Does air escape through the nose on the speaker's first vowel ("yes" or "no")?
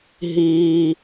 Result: no